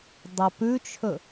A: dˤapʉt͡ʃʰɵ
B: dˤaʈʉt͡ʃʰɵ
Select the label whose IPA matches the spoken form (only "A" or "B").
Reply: A